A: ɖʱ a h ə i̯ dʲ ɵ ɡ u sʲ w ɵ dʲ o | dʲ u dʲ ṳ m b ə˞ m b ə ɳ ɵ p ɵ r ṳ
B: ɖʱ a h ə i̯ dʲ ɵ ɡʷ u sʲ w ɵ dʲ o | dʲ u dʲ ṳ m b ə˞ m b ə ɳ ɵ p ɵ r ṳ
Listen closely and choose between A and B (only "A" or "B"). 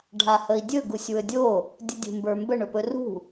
A